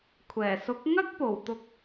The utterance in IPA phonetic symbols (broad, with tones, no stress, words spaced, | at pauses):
kʷʰɛː˨˩sʊ˨˥k̚ŋɐ˥k̚po˨˩w t̪ʊ˧k̚